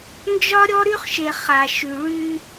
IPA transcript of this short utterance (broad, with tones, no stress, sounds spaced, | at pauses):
n d͡ʒ ɒ˦ ɾʲ ɔ˦ ɾ y˦ χ ʃ e˨ χ a˨ ʃ y˨ ɭ y˦